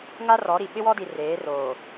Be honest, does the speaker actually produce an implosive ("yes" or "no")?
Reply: yes